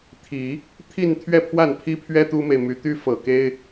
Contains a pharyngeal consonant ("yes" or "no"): no